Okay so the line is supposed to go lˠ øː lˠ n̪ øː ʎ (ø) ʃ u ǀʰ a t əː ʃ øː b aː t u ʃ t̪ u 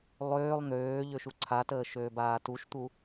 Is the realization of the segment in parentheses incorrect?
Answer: no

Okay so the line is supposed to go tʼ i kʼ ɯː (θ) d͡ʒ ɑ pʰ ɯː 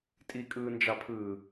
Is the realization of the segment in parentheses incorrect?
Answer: yes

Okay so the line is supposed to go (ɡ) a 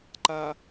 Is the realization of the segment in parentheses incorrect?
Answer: yes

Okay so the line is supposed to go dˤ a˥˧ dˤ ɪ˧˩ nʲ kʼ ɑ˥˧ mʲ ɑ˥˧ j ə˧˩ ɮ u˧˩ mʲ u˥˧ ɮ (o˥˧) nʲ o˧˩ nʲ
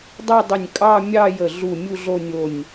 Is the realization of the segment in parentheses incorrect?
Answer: no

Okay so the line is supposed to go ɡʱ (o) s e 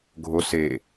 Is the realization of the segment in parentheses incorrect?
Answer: no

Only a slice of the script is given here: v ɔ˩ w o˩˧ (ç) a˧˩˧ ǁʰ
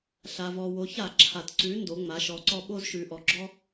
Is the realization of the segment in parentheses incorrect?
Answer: no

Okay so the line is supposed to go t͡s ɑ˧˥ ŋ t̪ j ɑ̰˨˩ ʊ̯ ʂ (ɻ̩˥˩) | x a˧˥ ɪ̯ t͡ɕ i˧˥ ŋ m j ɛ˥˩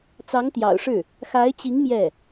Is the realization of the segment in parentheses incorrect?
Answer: no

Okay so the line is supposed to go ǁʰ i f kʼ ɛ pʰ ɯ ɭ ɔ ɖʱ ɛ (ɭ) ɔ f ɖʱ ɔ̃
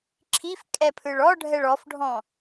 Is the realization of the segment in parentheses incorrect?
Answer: no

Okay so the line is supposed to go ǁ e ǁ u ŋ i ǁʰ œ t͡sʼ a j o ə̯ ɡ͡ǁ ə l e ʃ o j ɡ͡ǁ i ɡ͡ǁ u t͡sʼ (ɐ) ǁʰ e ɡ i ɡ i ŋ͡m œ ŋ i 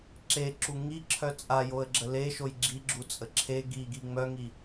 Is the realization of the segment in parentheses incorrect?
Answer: yes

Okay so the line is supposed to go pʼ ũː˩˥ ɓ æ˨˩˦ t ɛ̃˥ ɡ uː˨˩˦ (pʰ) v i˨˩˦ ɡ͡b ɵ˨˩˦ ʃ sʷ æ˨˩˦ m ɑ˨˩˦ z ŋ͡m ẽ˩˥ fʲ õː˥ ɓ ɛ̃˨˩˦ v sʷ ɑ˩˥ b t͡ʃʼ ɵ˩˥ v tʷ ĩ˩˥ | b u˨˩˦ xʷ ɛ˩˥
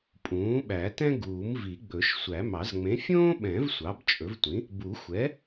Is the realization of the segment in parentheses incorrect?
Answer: yes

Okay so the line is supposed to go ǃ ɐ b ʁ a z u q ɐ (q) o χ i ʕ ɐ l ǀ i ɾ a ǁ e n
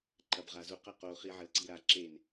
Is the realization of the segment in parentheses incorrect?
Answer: no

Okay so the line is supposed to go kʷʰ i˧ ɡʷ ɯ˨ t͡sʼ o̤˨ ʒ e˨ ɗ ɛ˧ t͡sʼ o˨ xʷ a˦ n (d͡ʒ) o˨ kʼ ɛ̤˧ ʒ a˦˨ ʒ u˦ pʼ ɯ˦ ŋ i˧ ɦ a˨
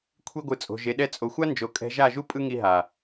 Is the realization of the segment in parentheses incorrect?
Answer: no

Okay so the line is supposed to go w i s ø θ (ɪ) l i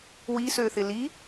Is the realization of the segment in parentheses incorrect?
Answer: no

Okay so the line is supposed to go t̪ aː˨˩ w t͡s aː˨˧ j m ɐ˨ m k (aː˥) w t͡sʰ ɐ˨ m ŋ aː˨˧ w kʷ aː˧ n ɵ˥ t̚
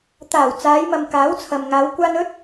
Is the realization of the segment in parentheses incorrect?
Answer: yes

